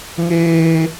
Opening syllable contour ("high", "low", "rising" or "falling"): high